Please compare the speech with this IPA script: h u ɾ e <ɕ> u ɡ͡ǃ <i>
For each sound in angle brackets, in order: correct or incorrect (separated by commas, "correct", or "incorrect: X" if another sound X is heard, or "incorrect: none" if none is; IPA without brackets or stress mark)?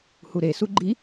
incorrect: s, correct